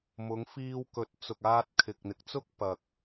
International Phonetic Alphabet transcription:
m ʊ˨˧ ŋ f iː˧ w k ɵ˨˥ t̚ t͡s ʊ˨ k̚ aː˧ t̚ kʰ ɪ˨ k̚ n̪ ɪ˨ k̚ t͡s ʊ˥ k̚ p ɐ˨ k̚

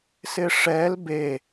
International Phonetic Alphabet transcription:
s ɪ ʂ ɛ l b e

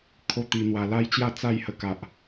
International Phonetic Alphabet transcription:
kʰ o˦ t̪ i˧ n̪ w a˧ l a˦ j t͡ɕ j a˥˧ t͡s a˥˧ j h ə˧ k a˨ ʔ

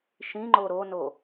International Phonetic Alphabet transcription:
ʃ ĩ ŋ͡ǃ o ɾ o n o

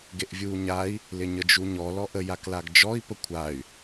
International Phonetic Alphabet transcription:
ɡ e ʔ vʲ uː ɲ a i̯ | l ɪ ɲ ə d͡ʒ u ɲ ɔ l ɔ ʔ ə j a k l a ɡ d͡ʒ ɔ i̯ p ə kʷʰ a y̯

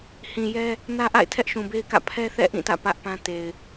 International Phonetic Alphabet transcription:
h ĩ˨ j ɛ˦ | n ä˦ ʔ a̰˦˨ ɪ̯ tʰ ɛ˦ ʔ ʃ ũ˨ b e˦ ɪ̯ k ä̰˦˨ pʰ ɛ˦ θ ɛ̰˦˨ ʔ ĩ˦˨ t ä̰˦˨ p ä˦ ʔ p ã˦ t e˨ ɪ̯

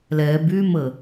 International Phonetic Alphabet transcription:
l ɛː b yː m ə

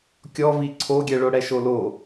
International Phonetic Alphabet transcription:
kʲ ɔ v i ǀʰ o ɡʲ ɛ ɭ o ɽ ɛ ʃ o l o

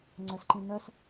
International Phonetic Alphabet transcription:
ŋ͡ǀ œ s ǃ ĩ n œ s

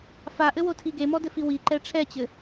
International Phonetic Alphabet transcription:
f a ʔ ɘ w o tʰ i ɡ e m ɔ d ɘ f i w i ǃ ɛ ʈ͡ʂʰ ɛ t͡ɕ ɘ

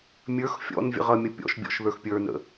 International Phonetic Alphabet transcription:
mʲ ə˞ x fʲ ɔ̰ n vʲ ə̰ ʁ ʌ mʲ ʌ pʲ ɔ̰ ʃ bʲ ɔ̰ ʃ ð ə˞ x pʲ ə˞ n ə̰

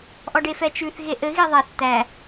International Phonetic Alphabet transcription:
ʔ ɔ ɖ e f ɛ t͡ʃ ʉ θ ɣ e ʔ ɘ ɣ i ðˤ ɛ θ t̪ æ

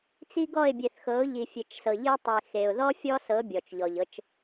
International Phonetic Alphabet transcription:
t͡s i˦ ɡ ɔ˦˨ ɪ̯ bʲ e˨ θ x ɤ˨˦ ʊ̯ ʎ i˨ fʲ e˨ t͡ʃ s ɤ˨ ʎ i˦ tˤ e˨ x e˨ ʊ̯ ð ɔ˦ fʲ ɔ˦ s ɤ˨˦ bʲ ɔ˨ t͡ʃ ʎ ɔ˨ ʎ ɤ˦ t͡ʃ

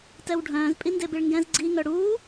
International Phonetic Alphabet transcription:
t ɛ w ɖʱ œ̃ː z pʼ i n d e b i ɭ ŋ ɡ ɛ̃ z ɡ͡ǀ i ŋ œ ɽ uː

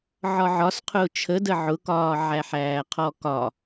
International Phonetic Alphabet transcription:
ʕ ɒ ʕ ɒ s qʰ ʊː t͡ʃʰ ə d ə ʕ ʊ k ɒː ʕ æ ħ æː qʰ ɔ k ɒ

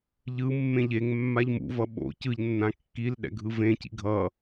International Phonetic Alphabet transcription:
ʎ ɯ mː ẽ ʎ e ŋ mː a ʎ m ṵ v ʌ ɓ o̰ c ɯ ʎ nː ã kː i l ɗ ɛ̰ ɡʱ ɯ v ẽ c ḭ ɡʱ ʌ

